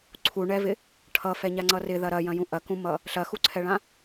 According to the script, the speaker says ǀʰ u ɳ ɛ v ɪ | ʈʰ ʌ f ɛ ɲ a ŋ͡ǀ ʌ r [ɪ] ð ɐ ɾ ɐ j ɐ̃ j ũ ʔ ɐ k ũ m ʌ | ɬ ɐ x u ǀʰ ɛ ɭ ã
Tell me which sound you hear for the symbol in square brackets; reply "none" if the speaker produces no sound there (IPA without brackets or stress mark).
ɪ